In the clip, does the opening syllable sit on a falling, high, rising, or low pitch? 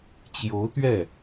rising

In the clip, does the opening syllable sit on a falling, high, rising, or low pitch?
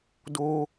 high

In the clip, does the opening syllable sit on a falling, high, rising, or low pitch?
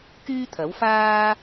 high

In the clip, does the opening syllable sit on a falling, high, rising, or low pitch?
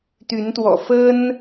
rising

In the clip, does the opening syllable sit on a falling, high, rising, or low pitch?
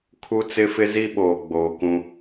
high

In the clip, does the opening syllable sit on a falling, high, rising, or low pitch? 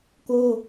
falling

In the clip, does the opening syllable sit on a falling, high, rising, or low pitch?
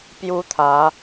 high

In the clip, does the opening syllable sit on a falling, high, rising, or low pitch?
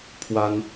high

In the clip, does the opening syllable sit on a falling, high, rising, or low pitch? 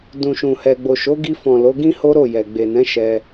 low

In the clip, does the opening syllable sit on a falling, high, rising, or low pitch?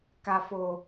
low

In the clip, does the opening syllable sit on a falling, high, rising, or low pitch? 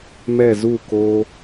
falling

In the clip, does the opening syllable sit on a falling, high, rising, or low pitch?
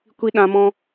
high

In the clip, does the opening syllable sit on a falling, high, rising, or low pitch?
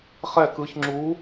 falling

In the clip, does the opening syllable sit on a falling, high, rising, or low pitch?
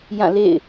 falling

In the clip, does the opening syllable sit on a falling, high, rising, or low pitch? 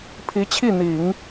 rising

